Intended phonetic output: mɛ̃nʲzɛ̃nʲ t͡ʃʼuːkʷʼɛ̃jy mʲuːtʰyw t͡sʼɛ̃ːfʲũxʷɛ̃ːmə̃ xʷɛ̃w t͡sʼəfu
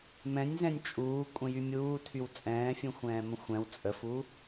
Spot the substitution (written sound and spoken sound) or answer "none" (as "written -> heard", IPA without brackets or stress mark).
none